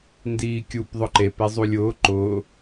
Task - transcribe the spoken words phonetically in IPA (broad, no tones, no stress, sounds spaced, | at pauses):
n d iː kʲ u p ðˤ ʊ ǃ e p e zˤ u lʲ ʊː ǃ ʊː